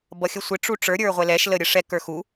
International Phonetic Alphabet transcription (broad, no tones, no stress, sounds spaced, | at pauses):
b ʌ xʲ ə sʷ ɪ ʈ͡ʂ u ʈ͡ʂ ə˞ ɾʲ ə˞ ʁʷ ɛ l ɛ ʃ l ə ɾʲ ə ʂ ɛ k ə˞ x u